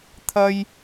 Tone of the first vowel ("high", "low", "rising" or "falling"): high